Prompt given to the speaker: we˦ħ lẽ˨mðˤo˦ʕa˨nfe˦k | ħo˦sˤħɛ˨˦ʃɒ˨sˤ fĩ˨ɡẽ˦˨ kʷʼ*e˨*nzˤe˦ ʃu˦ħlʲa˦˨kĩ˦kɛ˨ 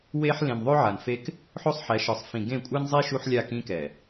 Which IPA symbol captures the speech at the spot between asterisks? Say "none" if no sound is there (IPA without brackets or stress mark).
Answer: e˦